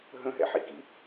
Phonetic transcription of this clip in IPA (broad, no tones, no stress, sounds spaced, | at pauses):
ɦ ə̃ ɦ ɛ̰ ħ ḭ k ḭ